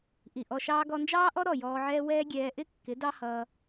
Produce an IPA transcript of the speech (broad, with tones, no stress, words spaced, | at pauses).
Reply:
ʔi˨ʔɔ˧ʃɑː˦ ɡɔ˧nd͡ʒɑː˦ʔɔ˦ ɾɔ˦˨jɔː˧ʕɛː˦ wɛː˦ɡʲɛː˧ ʔɪ˦ kːɪ˨˦dɑ˦hʌː˧